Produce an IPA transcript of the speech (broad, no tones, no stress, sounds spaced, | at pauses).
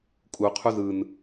kʼ u qʰ u z ɯ n